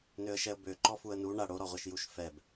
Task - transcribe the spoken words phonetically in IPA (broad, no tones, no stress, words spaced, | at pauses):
nøə̯ʃɛə̯bø ǃɔfuə̯nu ɳa ɽoɾɔʁʷeʃ juʃfɛb